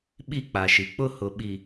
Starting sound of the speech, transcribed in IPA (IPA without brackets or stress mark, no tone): ɓ